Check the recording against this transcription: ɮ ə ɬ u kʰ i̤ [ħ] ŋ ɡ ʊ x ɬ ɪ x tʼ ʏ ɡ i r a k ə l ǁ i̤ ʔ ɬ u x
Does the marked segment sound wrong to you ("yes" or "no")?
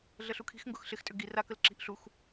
yes